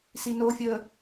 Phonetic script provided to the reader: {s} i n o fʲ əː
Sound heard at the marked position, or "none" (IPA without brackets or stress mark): s